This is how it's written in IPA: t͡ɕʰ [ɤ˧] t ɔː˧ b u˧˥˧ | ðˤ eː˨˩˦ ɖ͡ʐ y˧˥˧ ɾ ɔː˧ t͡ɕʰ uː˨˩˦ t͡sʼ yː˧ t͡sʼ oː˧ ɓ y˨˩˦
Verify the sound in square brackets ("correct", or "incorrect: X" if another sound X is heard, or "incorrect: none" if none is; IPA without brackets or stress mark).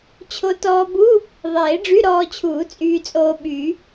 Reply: incorrect: o˧